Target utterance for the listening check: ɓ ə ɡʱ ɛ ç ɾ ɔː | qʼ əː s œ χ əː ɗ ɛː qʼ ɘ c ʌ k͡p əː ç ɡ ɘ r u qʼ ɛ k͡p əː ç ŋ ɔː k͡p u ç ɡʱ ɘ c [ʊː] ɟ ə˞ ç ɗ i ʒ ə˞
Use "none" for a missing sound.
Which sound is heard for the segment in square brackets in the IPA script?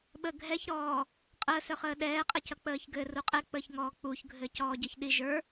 ɔː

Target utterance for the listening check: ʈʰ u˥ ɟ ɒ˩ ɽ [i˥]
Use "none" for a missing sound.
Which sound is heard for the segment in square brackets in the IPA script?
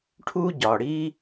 i˥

